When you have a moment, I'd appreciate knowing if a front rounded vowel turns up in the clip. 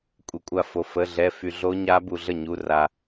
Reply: yes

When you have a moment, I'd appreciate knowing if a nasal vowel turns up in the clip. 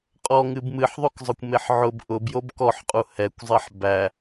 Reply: no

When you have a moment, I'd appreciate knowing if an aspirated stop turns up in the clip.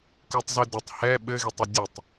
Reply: no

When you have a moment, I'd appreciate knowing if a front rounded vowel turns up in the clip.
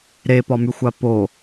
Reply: yes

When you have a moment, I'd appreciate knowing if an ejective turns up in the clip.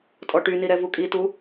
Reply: yes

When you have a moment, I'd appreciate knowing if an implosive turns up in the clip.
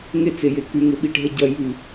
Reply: yes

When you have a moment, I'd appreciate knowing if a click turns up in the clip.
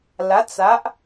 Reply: no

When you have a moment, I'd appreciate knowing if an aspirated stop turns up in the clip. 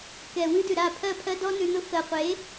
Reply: yes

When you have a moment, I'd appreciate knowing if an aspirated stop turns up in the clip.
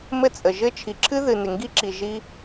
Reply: yes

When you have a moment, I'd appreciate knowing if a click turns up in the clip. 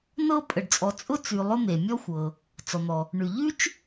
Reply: no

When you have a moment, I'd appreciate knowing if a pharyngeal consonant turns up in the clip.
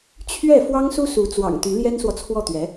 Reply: no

